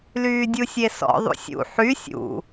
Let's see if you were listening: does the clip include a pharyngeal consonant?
yes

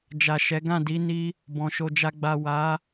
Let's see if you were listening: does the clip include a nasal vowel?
yes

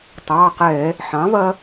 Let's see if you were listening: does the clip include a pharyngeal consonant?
yes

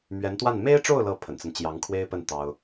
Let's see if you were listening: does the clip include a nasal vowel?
no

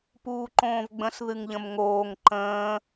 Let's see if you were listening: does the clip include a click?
yes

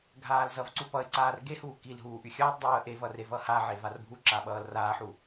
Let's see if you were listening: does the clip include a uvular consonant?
no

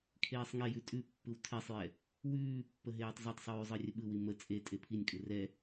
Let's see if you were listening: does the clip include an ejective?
yes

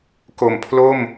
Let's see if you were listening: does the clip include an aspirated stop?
yes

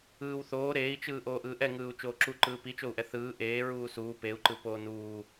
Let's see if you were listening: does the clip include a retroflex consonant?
no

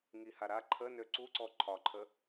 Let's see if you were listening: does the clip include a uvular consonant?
no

